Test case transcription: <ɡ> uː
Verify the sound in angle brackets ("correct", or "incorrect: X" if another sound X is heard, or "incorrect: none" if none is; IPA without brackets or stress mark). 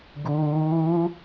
correct